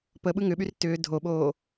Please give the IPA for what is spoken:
p ə ɓ ɯ ŋ ʏ ɓ y r t ʏː dʱ o ɓ oː

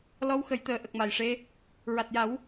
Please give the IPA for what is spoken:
l ɔ˧˥ w x ə˨˩˨ j t̪ əː˨˩˦ ʔ ə˨˩ k̚ m a˨˩ j ʂ e˧ | ɹ a˨˩ t̚ j a˨˩˦ w

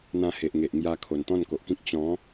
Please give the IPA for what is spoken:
n̪ ã˧ h e˨ ʔ ŋ e˨ ʔ ŋ j a˧ kʰ o˨˩ n t̪ ɔ̃˥˧ n k o˨ ʔ k ĩ˦ k̚ t͡ɕ ɔ̃˨˦

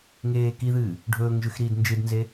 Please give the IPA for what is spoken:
ŋ eː k i ð ɨː | ɖʱ ɵː ŋ ʒ ʉ x ɾ iː d n d͡ʒ ɨ d n z e

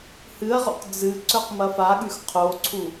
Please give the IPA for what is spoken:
h ɨ ɐ̯ ʁ o̰ q d͡z ɨ ǀ ɵ q m ɐ f a ɠ ʉ x qʰ o ǀʰ u

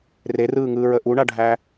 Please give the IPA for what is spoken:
r e r ɯː ŋ ɯː ɹ ə ʔ u ɳ a ɖʱ æ

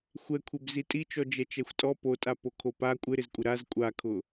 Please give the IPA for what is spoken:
xʷ ɛ kʷʰ e b z i tʼ i t͡ʃ ɔ d͡ʒ ɛ t͡ʃ ɛ xʷ tʼ ɔ p o tʼ a p o kʰ o p a kʷʼ ɪ ɾ ɪ z kʷʼ ɪ ɾ a z kʷʼ a kʰ ʊ

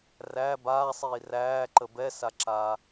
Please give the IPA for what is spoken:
r æ b aː sˤ iː r æː ǃ ə b ɛ s a ǁ aː

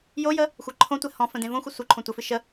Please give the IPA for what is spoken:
j o j ə | xʷ e ǃʰ õ tʷ ɛ h ɔ̃ f ə̃ d ẽ v õ xʷ ə sʷ ɨ ǃʰ õ tʷ ə f ɨ ʃ ə

